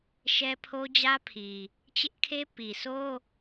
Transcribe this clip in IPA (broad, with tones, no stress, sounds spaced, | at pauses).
ʃ ɛ˦ pʰ o˦ d͡ʑ ä˦ pʰ i˨ | t͡ɕ ɪ˦ ʔ kʰ e˦ p i˨ sʰ o˦